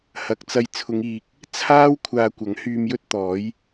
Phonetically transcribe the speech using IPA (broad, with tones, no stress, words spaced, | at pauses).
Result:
hɐ˨k̚t͡sɐ˧j t͡sʰʊ˨˧ŋiː˨k̚ | t͡sʰaː˥w kʷʰaː˧kʷɐ˨˥ŋ hyː˧mjɵ˥t̚ t̪ɔː˨˥j